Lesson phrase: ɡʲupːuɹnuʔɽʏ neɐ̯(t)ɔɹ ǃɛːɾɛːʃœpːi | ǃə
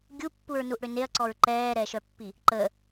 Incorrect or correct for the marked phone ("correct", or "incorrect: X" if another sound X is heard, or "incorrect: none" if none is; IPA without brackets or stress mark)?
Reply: incorrect: ǀ